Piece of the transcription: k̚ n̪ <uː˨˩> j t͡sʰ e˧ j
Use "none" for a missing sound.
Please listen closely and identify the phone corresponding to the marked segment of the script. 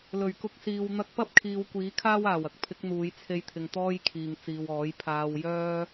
uː˨˧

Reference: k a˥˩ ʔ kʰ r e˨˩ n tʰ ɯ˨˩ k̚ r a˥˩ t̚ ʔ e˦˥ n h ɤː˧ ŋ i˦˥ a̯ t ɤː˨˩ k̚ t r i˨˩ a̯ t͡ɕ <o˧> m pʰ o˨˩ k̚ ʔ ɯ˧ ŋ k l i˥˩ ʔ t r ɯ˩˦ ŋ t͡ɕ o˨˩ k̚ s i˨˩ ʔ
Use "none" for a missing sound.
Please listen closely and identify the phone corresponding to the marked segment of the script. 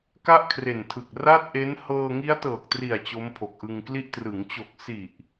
o˦˥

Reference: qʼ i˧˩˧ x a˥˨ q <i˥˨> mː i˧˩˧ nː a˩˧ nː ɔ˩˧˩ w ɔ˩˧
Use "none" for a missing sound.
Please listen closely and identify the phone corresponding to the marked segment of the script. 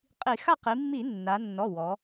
i˩˧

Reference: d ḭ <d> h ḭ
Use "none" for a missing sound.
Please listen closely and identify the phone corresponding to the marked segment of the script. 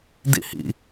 none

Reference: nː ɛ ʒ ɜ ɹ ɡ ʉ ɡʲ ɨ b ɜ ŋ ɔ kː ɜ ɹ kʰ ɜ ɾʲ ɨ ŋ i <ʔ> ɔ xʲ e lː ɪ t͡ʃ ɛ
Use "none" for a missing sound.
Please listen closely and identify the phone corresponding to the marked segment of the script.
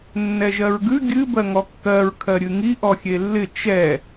ʔ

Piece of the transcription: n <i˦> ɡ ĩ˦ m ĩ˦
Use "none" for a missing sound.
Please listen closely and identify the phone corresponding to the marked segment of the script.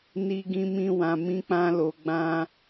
i˦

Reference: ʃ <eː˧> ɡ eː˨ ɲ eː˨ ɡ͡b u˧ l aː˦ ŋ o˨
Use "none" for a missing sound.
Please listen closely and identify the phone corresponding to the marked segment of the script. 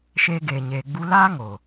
eː˧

